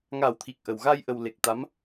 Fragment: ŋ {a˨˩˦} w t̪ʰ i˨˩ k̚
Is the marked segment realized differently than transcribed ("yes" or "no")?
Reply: no